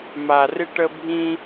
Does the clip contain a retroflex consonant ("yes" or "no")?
yes